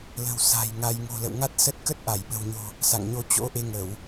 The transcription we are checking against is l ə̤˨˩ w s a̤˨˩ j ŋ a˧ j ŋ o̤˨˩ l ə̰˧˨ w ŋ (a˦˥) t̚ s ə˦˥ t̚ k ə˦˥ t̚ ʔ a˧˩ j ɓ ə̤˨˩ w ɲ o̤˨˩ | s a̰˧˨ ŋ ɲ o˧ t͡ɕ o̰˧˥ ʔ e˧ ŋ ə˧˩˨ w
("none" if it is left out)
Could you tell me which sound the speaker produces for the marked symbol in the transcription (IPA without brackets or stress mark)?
a˦˥